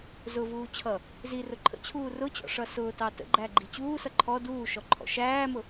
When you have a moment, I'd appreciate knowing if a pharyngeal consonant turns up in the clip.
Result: no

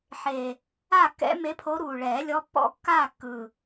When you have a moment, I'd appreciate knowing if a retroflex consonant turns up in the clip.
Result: yes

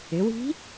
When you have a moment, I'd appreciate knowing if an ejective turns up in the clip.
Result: no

